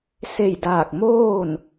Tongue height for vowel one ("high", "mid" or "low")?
mid